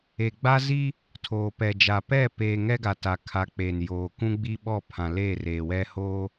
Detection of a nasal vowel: present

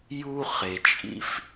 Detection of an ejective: present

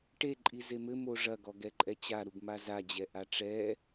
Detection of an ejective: present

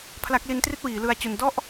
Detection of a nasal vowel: absent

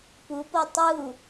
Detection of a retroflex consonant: absent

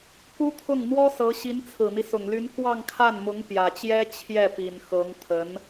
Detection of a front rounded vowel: present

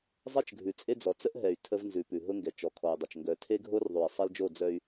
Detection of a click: absent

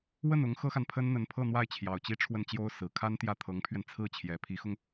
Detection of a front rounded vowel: absent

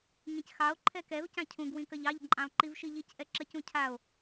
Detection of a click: present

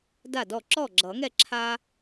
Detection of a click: present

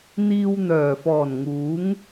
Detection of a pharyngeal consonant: absent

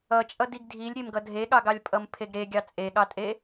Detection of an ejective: present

